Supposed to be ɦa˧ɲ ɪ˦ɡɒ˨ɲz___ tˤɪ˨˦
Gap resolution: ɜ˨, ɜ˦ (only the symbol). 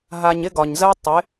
ɜ˦